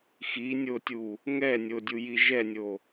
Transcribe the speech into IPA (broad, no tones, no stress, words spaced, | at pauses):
xinʲotʲu | ŋɛnʲodʲuji ʒɛnʲo